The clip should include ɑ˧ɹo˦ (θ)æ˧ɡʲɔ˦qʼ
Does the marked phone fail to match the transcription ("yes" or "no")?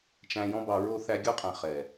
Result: no